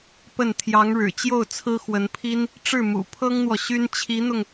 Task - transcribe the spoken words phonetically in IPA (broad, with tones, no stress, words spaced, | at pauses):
pə˥˩n t̪ʰjɑ˧˥ŋɻɻ̩˨˩t͡ɕjo˥˩ʊ̯ t͡sʰɹ̩˥xwə˧˥npʰi˥n | ʈ͡ʂɻ̩˥˩mṵ˨˩pʰɤ˥ŋn̪wɔ˨ ɕy˥n t͡ɕʰi˧˥n̪ʊ˧ŋ